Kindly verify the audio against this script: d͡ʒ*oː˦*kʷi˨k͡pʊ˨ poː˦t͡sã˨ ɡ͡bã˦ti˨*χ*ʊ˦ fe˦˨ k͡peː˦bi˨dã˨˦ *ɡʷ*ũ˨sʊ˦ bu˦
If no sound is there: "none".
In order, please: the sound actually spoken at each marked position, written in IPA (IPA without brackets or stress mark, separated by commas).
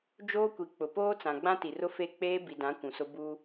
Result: oː˦, r, kʷ